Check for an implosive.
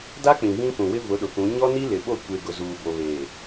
present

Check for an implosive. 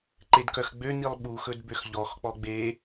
present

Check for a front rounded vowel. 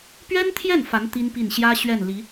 absent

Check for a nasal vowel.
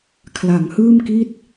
absent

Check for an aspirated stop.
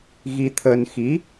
present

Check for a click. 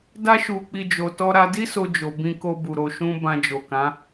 absent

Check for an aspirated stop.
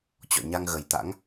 absent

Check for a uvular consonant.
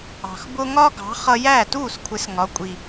present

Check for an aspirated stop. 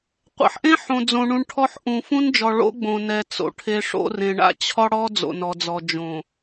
present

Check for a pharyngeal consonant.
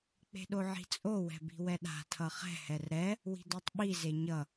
present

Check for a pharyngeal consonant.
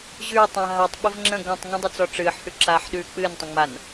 present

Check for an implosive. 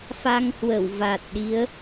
present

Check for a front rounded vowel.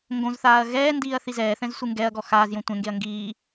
absent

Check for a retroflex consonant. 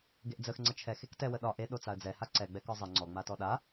absent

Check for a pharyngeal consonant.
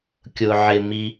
present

